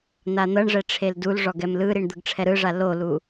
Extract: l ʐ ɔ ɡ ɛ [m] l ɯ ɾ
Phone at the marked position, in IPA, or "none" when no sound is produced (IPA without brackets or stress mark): m